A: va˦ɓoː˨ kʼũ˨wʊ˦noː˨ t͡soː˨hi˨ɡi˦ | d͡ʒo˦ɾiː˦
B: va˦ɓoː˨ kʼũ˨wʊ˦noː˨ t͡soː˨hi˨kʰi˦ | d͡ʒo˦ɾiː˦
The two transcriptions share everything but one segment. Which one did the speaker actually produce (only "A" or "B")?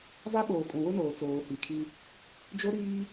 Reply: B